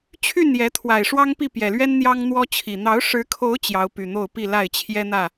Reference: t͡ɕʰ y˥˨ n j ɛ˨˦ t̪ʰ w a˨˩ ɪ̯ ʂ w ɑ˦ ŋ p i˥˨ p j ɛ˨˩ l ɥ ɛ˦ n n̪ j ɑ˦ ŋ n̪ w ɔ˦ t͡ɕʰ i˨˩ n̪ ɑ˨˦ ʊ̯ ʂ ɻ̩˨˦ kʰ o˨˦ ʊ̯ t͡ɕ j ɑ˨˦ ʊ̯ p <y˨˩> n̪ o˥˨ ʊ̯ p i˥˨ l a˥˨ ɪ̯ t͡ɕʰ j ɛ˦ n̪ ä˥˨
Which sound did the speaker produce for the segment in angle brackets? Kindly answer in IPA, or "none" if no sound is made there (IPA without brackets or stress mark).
y˨˩